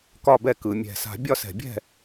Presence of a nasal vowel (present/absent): absent